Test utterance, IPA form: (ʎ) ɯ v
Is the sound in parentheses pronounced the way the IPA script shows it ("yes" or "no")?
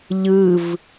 yes